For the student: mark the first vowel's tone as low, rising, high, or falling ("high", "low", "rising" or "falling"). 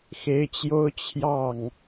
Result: rising